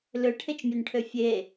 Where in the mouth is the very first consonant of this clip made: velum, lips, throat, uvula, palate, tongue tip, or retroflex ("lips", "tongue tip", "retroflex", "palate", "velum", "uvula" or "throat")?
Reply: tongue tip